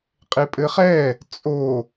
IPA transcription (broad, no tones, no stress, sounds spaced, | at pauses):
qʼ e pʼ ɘ χ ɛ | t͡sʼ o